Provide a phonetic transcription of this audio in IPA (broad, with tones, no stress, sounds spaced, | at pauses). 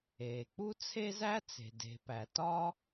eː˩ k͡p u˥ t͡sʰ e˥ z æ˥ t͡s e̤˩ d e̤˩ p æ˩ t ɒ˥